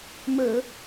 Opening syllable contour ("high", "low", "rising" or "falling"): low